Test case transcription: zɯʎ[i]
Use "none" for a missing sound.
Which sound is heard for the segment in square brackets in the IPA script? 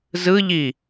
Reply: i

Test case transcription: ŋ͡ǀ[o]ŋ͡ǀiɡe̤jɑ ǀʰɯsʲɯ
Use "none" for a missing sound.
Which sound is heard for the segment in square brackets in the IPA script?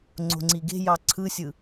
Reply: o̤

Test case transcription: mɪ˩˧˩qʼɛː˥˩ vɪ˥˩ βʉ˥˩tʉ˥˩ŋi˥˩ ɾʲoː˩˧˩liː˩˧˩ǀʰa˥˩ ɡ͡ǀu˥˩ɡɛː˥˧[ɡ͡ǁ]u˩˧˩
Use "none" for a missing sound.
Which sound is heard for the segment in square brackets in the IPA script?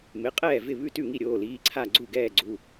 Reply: ɡ͡ǀ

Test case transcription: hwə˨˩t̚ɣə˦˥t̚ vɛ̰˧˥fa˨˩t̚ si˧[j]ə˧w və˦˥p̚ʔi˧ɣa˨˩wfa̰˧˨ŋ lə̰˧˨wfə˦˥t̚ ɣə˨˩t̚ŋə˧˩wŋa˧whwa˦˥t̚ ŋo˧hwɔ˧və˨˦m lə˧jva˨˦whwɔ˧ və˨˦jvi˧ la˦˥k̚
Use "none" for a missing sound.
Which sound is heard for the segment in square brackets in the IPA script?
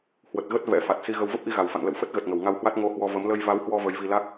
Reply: ɣ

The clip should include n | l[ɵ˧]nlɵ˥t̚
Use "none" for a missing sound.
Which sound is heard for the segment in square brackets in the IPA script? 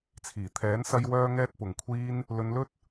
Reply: ɵ˧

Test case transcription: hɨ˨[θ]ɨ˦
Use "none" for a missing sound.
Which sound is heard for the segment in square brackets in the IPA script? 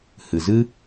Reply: z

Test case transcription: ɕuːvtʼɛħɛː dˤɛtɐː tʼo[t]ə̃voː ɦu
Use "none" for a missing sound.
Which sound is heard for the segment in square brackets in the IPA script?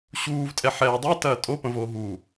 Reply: p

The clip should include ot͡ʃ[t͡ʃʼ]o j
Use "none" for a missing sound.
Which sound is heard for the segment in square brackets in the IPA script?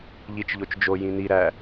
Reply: d͡ʒ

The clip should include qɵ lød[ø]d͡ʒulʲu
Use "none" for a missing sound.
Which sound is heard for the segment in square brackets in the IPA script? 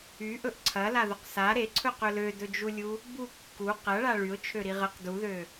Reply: ɵ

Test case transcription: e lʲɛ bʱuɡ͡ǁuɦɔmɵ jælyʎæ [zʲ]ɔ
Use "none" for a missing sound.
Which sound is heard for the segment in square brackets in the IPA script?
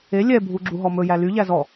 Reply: z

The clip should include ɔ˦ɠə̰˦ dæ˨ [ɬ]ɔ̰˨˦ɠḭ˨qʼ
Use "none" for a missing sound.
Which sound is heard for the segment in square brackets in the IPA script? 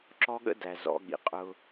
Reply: z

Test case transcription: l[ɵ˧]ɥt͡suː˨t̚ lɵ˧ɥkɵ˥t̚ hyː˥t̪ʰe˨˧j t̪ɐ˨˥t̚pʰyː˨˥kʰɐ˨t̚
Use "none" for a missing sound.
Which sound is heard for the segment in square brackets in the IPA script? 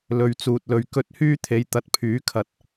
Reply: ɵ˨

